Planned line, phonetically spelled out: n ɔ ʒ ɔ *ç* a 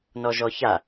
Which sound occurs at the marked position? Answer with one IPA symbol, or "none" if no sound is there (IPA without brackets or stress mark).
ç